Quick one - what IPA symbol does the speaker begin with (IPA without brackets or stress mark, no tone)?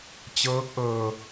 t͡ɕ